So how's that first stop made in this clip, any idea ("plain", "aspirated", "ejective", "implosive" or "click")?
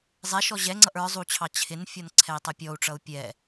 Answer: click